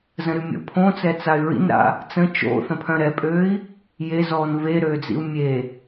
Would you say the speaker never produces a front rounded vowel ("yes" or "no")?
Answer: no